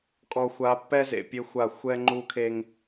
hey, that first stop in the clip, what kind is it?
ejective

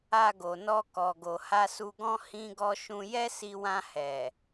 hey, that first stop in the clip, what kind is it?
plain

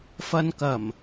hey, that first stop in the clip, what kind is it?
plain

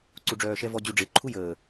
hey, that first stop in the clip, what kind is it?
click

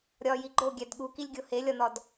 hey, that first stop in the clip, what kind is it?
click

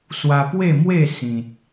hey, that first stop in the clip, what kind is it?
plain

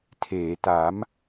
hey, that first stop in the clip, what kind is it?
aspirated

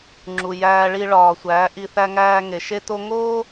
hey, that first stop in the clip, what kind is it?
click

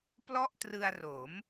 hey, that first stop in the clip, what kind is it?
plain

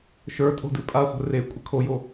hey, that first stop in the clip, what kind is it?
ejective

